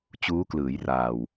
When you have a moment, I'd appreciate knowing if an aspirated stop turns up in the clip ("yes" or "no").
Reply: no